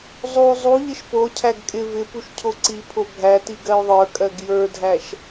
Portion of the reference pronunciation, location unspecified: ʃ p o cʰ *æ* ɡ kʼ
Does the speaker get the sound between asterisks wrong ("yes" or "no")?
no